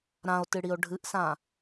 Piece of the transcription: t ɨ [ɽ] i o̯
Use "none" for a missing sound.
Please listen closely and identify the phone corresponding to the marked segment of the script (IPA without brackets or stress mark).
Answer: ɽ